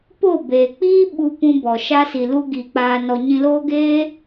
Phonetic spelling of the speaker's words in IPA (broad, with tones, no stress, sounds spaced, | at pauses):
p o˦˨ b eː˨ k͡p iː˦ ɓ u˧ p ũ˧ b ɔ˨ ʃ a˧ s i˨ l u˧ ɡ iː˧ k͡p aː˦ n ɔ˦ ɲ ĩ˧ l oː˦ ɡ eː˦